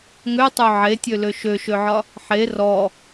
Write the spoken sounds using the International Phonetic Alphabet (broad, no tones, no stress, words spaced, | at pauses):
ŋøtˤø ʕetʲølø ʃøʃøʕɒ | ħe rɔ